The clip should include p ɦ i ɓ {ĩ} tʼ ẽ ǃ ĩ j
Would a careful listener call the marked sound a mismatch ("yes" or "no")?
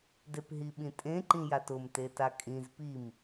no